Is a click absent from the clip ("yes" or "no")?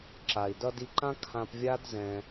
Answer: no